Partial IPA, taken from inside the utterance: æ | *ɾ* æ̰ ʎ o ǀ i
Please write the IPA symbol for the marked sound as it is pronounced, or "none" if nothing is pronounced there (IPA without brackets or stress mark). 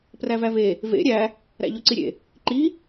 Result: ɾ